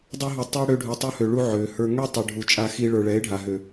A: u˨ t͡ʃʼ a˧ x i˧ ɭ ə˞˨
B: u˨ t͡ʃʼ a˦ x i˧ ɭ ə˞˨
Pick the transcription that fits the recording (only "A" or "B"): A